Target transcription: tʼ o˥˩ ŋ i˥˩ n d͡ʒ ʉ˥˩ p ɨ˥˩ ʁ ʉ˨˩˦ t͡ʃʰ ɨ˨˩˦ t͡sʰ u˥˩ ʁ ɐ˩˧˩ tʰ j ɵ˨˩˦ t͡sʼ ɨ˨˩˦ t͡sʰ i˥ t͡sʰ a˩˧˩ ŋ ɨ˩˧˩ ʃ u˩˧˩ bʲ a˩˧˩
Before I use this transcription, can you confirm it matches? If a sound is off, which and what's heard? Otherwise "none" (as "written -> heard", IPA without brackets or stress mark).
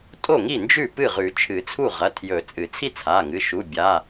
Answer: none